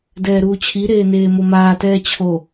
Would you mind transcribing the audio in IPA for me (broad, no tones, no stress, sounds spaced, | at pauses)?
d ɛː ɾ uː t͡ɕʰ i ɾ eː n eː m o m aː t ɛː t͡ɕʰ o